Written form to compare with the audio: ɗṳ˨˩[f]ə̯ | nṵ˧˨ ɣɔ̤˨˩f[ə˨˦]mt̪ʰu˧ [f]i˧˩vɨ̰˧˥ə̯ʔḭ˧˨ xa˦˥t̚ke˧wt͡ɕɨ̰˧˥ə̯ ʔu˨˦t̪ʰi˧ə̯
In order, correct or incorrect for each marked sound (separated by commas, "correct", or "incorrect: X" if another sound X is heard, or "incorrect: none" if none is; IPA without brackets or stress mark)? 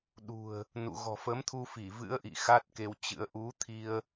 incorrect: none, correct, correct